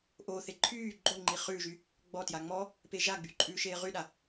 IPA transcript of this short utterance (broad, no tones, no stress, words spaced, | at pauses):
ʔoːθe ǃʰyː ɡ͡ǃoŋ͡ǃi χʉːʒy | ɡ͡bɔtja ŋ͡mɔ | peːʒaɡ͡by ǃʼʉːʃeːʁyɗa